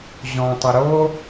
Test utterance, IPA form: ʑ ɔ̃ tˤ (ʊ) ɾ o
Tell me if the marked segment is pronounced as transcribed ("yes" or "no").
yes